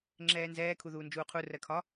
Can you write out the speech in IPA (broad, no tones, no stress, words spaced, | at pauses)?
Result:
ŋ͡ǁɛːnzɛː kʰuðuːnd͡ʒuːqʰu rɜkʰɒ